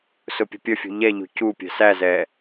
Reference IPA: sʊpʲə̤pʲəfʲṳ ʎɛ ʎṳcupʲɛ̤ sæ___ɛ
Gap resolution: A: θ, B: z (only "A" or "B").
B